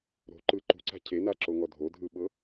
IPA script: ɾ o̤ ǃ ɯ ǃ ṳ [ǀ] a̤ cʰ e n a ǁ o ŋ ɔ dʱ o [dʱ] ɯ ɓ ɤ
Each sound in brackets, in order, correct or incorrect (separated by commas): correct, correct